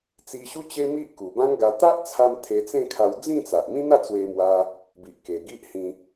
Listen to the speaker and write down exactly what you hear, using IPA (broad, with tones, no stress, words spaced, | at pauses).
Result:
t͡si˧ɕu˦ t͡ɕe˦mi˦ʔ ku˨˩bã˦ŋɡa˧ t̪a˦ʔt͡sʰa˧m t̪ʰe˧t͡sẽ˥˧kʰa˧w d͡zĩ˥˧t͡sa˨ʔmĩ˦ n̪a˥˧t͡swe˧mwa˧ | bi˨ʔke˨˩ ɡi˦ʔhĩ˧